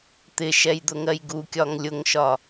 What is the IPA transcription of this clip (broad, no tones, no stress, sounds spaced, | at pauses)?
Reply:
t̪ ɪ ʃ ɛ j d̪ ʊ ŋ ɜ j ɡ u kʲ ɒ ŋ lʲ ʊ ŋ ʃ ɒ